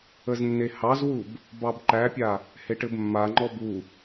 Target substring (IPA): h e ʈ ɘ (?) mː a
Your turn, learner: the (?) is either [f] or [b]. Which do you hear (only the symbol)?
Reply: b